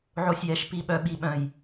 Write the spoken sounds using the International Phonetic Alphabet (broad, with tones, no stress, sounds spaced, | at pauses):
ʕ o˧ sʲ j ɛ˨˦ ʃ p i˨ ɓ œ˨ ɓ i˨ ɓ œ̃˨ j